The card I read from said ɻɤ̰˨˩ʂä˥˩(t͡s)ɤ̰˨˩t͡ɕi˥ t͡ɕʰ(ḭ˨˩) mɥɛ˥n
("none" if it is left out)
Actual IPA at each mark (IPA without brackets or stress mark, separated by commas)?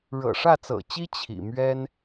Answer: t͡s, ḭ˨˩